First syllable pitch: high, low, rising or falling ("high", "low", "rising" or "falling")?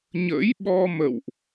rising